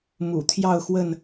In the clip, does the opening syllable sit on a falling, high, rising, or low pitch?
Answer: low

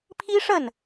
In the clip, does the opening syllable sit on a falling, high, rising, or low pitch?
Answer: high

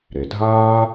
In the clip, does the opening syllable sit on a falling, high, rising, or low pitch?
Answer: low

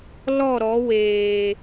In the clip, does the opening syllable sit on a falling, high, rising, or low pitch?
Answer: falling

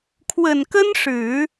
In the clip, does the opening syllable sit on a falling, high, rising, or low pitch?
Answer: low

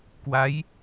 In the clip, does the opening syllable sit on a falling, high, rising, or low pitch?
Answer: rising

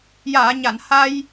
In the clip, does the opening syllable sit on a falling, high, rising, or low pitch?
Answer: low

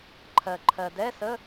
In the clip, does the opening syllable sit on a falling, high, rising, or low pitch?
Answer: low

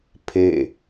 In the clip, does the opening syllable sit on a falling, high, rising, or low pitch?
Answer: falling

